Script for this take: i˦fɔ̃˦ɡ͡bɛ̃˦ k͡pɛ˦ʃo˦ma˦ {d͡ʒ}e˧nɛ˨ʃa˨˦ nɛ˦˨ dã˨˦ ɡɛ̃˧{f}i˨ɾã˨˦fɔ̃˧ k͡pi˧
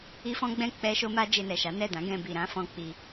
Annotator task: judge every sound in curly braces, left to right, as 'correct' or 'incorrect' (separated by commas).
correct, incorrect